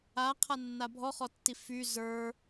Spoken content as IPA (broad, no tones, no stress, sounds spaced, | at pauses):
a qʰ a nː a bʱ ɔ χ ɔ tː i f y z ə˞